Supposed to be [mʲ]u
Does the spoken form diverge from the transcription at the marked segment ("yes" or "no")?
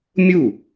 no